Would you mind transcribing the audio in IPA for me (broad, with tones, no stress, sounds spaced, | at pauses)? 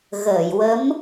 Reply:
ɣ əː˨˩˨ j w ə˧˥ m